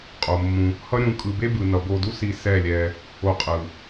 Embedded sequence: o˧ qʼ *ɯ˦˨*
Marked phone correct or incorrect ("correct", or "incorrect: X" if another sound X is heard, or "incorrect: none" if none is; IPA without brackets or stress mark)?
incorrect: ɯ˨